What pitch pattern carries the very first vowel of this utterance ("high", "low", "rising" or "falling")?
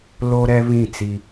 high